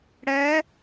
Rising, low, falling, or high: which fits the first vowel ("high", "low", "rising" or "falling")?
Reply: rising